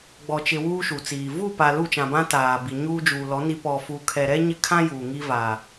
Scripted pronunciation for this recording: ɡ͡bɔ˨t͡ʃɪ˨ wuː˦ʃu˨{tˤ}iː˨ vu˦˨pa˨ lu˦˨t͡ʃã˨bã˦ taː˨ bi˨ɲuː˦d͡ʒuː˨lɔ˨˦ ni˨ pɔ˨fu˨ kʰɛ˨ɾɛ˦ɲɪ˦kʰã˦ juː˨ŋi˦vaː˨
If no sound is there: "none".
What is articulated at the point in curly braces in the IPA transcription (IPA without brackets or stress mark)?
t͡s